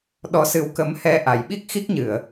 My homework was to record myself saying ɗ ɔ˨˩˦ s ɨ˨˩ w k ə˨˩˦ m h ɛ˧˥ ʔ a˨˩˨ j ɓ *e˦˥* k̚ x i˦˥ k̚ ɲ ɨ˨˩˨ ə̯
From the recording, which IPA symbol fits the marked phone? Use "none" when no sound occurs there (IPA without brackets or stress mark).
i˦˥